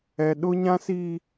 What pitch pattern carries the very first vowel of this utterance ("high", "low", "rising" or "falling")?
high